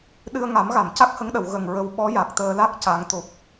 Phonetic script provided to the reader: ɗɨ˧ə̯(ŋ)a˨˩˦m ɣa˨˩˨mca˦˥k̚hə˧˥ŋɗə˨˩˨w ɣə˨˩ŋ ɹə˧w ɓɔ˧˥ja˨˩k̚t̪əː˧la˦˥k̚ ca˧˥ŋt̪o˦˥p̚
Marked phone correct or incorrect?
correct